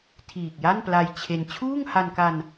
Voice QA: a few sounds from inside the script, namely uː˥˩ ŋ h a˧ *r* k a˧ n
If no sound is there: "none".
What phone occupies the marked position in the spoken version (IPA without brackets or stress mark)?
n